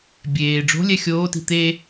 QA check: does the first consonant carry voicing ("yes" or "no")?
yes